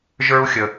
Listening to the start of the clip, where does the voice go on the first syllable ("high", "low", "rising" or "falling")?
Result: high